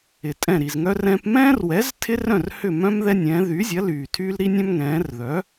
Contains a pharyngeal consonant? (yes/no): no